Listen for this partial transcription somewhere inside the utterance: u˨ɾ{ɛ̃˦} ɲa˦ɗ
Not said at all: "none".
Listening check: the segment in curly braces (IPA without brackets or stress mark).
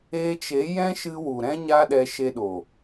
ɛ̃˦